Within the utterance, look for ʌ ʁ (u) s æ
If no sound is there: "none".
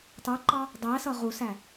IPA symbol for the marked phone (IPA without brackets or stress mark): u